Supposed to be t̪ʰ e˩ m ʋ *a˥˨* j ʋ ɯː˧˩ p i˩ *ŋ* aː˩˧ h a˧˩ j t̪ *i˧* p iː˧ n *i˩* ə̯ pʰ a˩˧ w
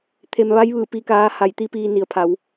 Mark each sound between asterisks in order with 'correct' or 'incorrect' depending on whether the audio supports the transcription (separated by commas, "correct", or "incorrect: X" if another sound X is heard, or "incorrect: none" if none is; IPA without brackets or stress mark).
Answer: incorrect: a˧˥, incorrect: k, incorrect: i˧˥, correct